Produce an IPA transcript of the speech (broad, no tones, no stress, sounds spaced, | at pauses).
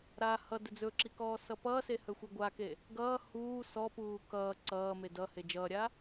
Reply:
ɾ a h ʌ d ɵ d͡z ɵ ǁ i k ɔː s ʌ p ʌː s e h ɵ xʷ i ɡʷ a k e | ɡ ʌː h uː s ɔ p uː k ʌː ǀ ʌː m e d ʌ h e d͡ʒ ʌː ɾʲ a